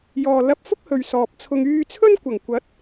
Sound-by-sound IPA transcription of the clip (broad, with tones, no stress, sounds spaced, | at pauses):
j ɔː˨ l ɐ˧ p̚ f ʊ˥ k̚ h ɵ˨ ɥ s ɔː˨ p̚ t͡sʰ ʊ˧ ŋ yː˧ t͡sʰ ɵ˥ n kʷ ɐ˨˩ ŋ kʷ ɐ˨˥ t̚